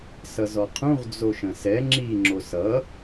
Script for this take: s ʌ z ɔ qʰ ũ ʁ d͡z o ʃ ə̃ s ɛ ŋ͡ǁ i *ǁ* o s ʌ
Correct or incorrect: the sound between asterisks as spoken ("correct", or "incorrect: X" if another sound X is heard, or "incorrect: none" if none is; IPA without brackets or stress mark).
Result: incorrect: ŋ͡ǁ